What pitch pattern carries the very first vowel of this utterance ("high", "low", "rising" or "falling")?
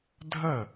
falling